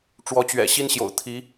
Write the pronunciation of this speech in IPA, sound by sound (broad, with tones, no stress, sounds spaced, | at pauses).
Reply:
ʈ͡ʂ w ɔ˧˥ t͡ɕ ɥ ɛ̰˨˩ ɕ i˥ n ɕ j o̰˨˩ ʊ̯ t̪ʰ i˧˥